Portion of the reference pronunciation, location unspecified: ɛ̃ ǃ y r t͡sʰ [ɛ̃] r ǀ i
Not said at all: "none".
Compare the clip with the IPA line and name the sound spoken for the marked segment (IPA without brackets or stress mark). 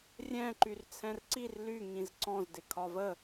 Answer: ɛ̃